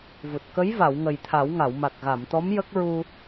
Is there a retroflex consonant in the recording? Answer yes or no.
no